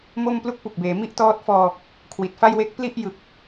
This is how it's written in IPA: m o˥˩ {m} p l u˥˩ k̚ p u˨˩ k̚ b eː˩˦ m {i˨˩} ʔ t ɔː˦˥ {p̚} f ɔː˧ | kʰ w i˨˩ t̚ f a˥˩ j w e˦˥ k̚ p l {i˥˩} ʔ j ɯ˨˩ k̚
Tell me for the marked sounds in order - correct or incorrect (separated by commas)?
correct, incorrect, incorrect, correct